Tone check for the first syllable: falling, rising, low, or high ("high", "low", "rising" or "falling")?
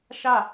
falling